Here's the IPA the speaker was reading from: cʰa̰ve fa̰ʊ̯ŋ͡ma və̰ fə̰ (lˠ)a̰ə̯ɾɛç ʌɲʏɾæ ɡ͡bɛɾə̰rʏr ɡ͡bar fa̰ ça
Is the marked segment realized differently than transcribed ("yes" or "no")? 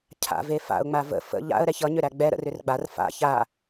yes